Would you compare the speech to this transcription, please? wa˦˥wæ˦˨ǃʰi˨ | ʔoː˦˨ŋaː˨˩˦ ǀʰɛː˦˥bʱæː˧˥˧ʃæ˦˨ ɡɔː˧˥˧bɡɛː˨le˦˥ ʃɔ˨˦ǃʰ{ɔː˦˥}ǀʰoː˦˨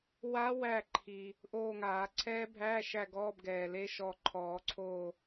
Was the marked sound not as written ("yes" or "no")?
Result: yes